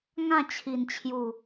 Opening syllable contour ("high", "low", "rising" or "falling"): falling